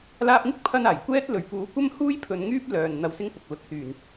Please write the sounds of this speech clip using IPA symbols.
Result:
l aː˧ p̚ ŋ ɪ˥ k̚ pʰ ɐ˧ n aː˨˩ j kʷ ɛː˥ t̚ l ɵ˨˩ ɥ p uː˨˥ kʷ ɐ˥ m h uː˥ j pʰ ɵ˧ n ŋ yː˥ p̚ l œː˨ n n̪ ɐ˧ w s ɪ˥ ŋ p ʊ˨ k̚ l ʊ˨˥ k̚ s yː˨˩ n

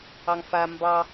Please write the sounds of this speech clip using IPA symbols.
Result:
ɑ ŋ f a m b ɑ

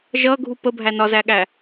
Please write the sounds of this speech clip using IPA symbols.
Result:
ʒ ʌ ɡʱ u p ə bʱ æ n ɒ z æ ɠ æ

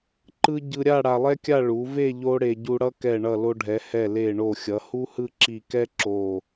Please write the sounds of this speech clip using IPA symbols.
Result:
ǃ ɯ˥ ɟ ɯ˧ ɾʲ a˥˧ ɽ a˧ lˠ ɛ˥ kʲ a˥˧ ɭ u˩˧ v e˥˧ ʎ o˥ ɽ e˧ ɟ u˧ ɽ ʌ˥ k ɛ˧˩ ɳ ʌ˧˩ l o˧ ɖʱ ɛ˩˧ h ɛ˧˩ l e˧˩ ɳ o˧˩ xʲ ʌ˩˧ h u˥ h ɯ˥˧ ǁ i˧˩ k ɛ˥ ǁ o˧˩

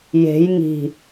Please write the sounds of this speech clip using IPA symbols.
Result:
j e̤ j ŋ i̤

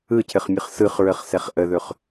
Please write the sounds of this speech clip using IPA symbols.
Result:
ɯ cʰ ɘ χ mʲ ɯ χ s ɯ χ ɹ ə χ s ɛ χ ʔ ə ð ɵ χ

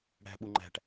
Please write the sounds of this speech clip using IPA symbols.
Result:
ɽ æ̤ ɓ u ŋ͡ǃ æ̤ ʈ

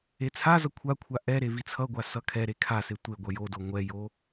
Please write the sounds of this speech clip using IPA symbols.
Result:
e t͡sʰ a z ʌ kʷʰ a kʷʰ a ʔ ɛ ɾ e v i t͡sʰ ʌ ɡʷ a s ʌ kʰ ɛ ɾ e kʰ a s e tʷ e ɡʷ ʌ j o d o ŋʷ ɛ j o

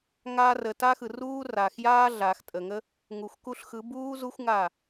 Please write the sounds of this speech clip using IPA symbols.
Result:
ŋ aː˧ r ə˨ t a˦ x ɯ˨ r uː˦ r aː˨ x j aː˦ ɮ aː˨ x tʼ ə˨ ŋ ə˦ | ŋ u˨ xʷ k u˧ ɬ x ɯ˨˦ b uː˦ z u˦ xʷ ŋ a˦˨

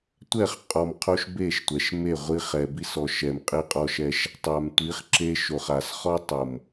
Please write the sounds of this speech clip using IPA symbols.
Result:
tʷ ɛ˦˨ χ qʼ ɔ˨ m qʰ o˧ ʃ b e˦˨ ʃ tʷ ɛ˨ ʃ m e˦˨ ʁʷ i˧ χ ɛ˨ b i˧ s ɔ˨ ʃ ɛ˨ m qʼ i˧ qʼ ɔ˧ ʃ ɛ˧ ʃ | tˤ a˨ m tʷ i˨˦ χ ǁ e˧ ʃ o˨ χ a˨ s χ ɔ˦ tˤ o˨ m

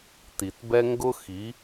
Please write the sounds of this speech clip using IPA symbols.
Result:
t i˨ t b ɛ˦ ŋ ɡ ʊ˦ x i˨˦

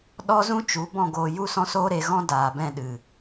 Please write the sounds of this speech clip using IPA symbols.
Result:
ɗ ɔ˦ z ũ˦ t͡ʃ u˨˦ b ɔ̃˦˨ ɡ oː˧ j u˦ s ɔ̃˦ s oː˦ ɾ e˧ ɣ ɔ̃˦ d aː˨ b ɛ̃˧ ɗ ɨ˨

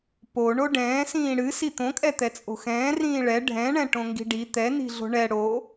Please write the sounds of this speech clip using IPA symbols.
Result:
p o ɳ o ɖ ɛ̃ː s ĩː ɽ ɨ s i t̪ õ kʼ ɛ t̪ ɛ t͡sʼ o̤ x ɛ̃ː r ĩː ɭ ɛ ɖʱ ɛ̃ ɳ ɛ̃ ʈ õ ŋ ɡ i̤ ɖ i t̪ ɛ n i̤ ɮ o̤ ɳ ɛ ɽ o

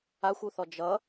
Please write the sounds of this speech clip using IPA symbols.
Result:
a xʷ u θ ɔ d͡ʒ ʌ

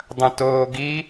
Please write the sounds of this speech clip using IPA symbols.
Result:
dˤ ɐ̃ t oː ɡ i

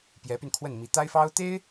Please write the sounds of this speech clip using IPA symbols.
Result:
p j ɛ˧˥ p y˧ n kʰ w ə˥˩ n m i˧˥ t̪ a˥ ɪ̯ f ɑ˥ ʊ̯ t̪ e˥ ɪ̯

